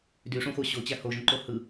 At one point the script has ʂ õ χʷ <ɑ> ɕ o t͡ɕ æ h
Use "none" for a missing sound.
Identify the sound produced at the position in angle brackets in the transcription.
ɑ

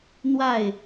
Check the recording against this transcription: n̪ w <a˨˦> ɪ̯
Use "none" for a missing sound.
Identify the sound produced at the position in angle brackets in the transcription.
a˥˨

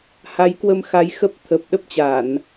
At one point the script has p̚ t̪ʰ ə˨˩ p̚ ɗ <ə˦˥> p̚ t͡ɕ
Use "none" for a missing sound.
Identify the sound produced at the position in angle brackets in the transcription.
ə˦˥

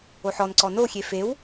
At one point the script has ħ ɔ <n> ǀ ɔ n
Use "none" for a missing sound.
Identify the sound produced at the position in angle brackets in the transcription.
n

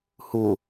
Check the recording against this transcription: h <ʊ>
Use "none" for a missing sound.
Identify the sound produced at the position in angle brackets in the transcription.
u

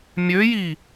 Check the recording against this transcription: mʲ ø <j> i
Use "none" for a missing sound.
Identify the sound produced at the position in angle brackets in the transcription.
j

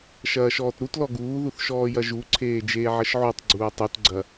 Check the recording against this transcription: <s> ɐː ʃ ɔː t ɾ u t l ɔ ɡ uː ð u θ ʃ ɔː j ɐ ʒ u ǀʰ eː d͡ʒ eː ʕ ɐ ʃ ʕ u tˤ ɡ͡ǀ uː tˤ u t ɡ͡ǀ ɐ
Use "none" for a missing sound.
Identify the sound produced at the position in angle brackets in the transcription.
ʃ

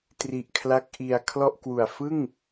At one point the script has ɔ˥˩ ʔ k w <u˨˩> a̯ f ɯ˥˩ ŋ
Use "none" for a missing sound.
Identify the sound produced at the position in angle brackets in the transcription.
u˨˩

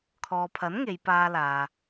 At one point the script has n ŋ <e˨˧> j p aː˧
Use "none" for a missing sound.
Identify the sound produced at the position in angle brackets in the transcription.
e˨˧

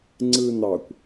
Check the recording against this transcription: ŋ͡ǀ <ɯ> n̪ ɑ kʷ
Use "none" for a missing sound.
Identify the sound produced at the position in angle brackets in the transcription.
ɯ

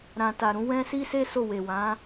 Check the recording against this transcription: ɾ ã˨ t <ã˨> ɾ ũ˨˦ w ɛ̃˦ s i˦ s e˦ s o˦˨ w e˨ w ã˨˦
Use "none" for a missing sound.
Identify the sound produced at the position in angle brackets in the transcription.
a˨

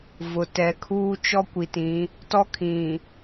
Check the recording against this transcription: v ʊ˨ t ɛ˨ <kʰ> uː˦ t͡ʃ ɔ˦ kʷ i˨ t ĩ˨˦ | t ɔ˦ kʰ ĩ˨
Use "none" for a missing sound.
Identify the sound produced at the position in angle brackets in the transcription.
kʰ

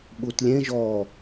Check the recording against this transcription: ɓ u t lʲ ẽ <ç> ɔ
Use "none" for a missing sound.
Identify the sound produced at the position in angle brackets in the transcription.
ʒ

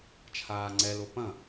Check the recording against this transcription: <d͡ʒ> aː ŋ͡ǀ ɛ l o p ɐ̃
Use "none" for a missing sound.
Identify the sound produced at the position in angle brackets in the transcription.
t͡ʃʰ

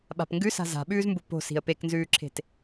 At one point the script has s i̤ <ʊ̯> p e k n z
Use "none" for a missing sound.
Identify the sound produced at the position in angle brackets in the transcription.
ə̯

